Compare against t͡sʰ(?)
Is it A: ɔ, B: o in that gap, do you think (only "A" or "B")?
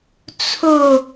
B